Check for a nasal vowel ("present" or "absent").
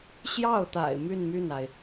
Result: absent